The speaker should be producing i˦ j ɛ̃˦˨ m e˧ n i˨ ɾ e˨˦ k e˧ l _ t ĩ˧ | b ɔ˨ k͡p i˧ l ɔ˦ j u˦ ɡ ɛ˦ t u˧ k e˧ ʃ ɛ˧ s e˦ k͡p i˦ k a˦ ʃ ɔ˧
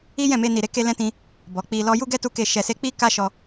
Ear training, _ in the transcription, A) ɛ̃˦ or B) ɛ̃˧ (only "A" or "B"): A